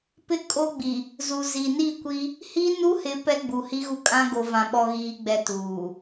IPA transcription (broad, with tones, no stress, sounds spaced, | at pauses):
p ɪ˦ kʼ o˦ ɡ͡b i˨ | z u˨ z i˨ n i˦˨ kʷ i˦ | h i˦ n u˦ h ɪ˨˦ p ɛ˦ ɡ͡b u˨ h i˦ ɣ u˦ kʼ ã˦ ɡ o˨ v ã˦ ɓ ɔ˦ ɣ iː˦ ɡ͡b ɛ˦ t uː˨